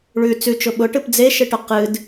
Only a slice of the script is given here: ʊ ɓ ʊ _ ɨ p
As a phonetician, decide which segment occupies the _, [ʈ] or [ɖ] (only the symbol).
ʈ